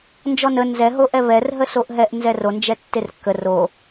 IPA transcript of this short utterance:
n d͡ʒ ɔ n ə n z ɛ ɦ o ʔ ɛ β ɛ r ɦ ə s o ʔ ɦ ɛ ʔ n z ɛ r o n d͡ʒ ɛ tː e r kː ə r o

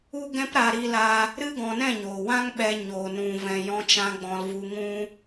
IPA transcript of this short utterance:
u˦ ɡ ɛ̃˦ p ɾ a˧ ɾ i˦ l a˦ | ɾ ɨ˦ ɡ ɔ̃˧ n ɛ̃˦˨ ɲ oː˨ w ã˦ ŋ ɓ ɛ˧ ɲ oː˨ n ũ˨ v ɛ̃˨ j ɔ̃˧ t͡ʃ ã˧ ɡ͡b ɔ̃˧ l v u˧ ŋ ũ˦

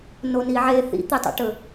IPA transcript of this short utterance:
n o n i ʕ e θ ḭ t̪ i tˤ o̰ ʈ ɵ

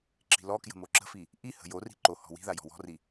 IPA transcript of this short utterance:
ǁ i̤ l ɔ k j ə̤ m o ǁ ə̤ f i | ʔ i h ə̤ j o r i̤ ǃ o h ɔ̤ w i̤ ð a j ɔ̤ w ɔ̤ r i

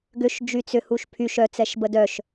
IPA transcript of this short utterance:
ɡ ʏ ʃ d͡ʒ y t͡s ʏ h u ʃ pʰ y ʃ œ t͡s ɛ ʃ b ə d œ ʃ

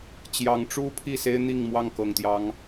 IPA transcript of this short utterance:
t͡ɕ j ɑ˨˦ ŋ ʈ͡ʂ u˦ pʰ i˥˨ s e˦ ɪ̯ n̪ i˥˨ ŋ m w ɑ˥˨ ŋ k ɤ˨˩ ŋ t̪ j ɑ˨˦ ŋ

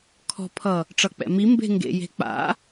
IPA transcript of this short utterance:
kʰ ɔ̤ pʰ ʌ | ʈ͡ʂ ʌ k͡p ɛ̰ m i m b e̤ ŋ ɡ ḛ j e̤ k͡p a̰

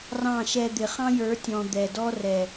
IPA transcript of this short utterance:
r ɑ̃˦˨ ʃ ɛ˧ d̪ ɪ˨ χ ɑ̃˦ j ə˞˨˦ tʲ ɔ̃˨ d̪ ɛ˨ d ɔ˦ r ɛ˨

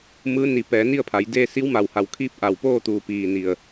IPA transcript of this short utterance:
m ɯː˧˥ n i˧˩ p ɛː˩˧ n i˥˨ ə̯ pʰ a˩˧ j d eː˥˨ s i˧˥ w m a˧˩ w h a˧˩ w kʰ iː˥˨ p̚ ʔ a˧˩ w p oː˥˨ t̪ uː˧˩ p iː˧˩ n i˧˩ ə̯

